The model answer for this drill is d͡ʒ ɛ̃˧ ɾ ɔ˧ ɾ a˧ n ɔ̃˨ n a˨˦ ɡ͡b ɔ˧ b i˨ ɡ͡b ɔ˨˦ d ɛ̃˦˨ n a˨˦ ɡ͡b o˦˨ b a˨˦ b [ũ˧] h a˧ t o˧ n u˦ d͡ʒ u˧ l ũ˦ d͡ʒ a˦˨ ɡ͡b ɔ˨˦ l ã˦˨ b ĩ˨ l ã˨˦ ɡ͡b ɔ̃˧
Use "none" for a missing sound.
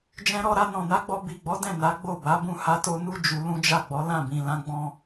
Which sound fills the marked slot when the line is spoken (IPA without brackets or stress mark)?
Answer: ũ˦˨